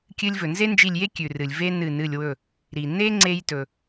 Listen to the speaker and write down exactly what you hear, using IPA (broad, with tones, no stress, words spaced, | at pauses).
kʲɨ˧lʲvɵ˩nze˥ nd͡ʒi˧˩lʲje˥ kʲʉ˩rɨ˩lʲ ve˧ nɨ˧˩ nɨ˧˩lʲwɵ˧˩ | ɾi˩ ne˥ŋ͡ǀe˧j tɵ˩